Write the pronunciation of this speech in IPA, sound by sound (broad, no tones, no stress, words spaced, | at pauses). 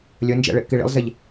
lʲɘnd͡ʒɛ̰ ɭeʔkiɭḭlˠzɛʎ